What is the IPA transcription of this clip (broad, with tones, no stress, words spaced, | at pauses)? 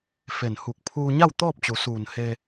fe˧˩nhu˧˩k̚ pʰuː˧ɲa˥˨w t̪ɔː˥˨p̚t͡ɕu˩˧suː˧˩n he˧